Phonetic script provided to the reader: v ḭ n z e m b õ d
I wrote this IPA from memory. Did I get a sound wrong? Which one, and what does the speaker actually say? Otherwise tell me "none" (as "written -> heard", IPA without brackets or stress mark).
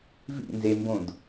none